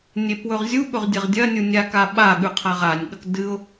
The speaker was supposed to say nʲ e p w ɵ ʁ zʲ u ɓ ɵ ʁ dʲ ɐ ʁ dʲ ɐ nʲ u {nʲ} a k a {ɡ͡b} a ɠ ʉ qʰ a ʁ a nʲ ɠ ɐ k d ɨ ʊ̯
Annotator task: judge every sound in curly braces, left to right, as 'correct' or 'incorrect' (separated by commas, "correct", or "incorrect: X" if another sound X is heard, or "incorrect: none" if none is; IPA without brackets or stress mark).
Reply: correct, incorrect: ɓ